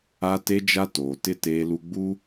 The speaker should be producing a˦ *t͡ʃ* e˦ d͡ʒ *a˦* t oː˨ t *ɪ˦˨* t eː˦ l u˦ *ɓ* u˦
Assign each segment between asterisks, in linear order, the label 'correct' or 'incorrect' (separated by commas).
incorrect, correct, correct, incorrect